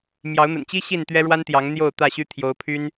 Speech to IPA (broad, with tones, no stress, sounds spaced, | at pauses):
m j ɑ˨˦ ʊ̯ n̪ ə̰˨˩ n t͡ɕ i˦ ɕ i˥˨ n t̪ ɥ ɛ˦ ɻ w a˦ n t̪ j ɑ˨˦ ŋ n̪ j o˥˨ ʊ̯ t̪ ä˥˨ ɕ y˦ t̪ʰ j o˨˦ ʊ̯ pʰ y˦ n